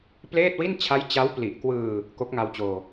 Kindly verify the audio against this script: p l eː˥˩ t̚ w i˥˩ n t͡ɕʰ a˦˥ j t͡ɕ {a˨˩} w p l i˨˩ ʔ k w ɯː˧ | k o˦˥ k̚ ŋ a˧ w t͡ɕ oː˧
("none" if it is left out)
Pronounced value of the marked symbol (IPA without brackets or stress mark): a˦˥